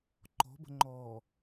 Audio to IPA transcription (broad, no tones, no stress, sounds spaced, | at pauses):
ǃ ɔ̤ b ə̤ ŋ͡ǃ ɔː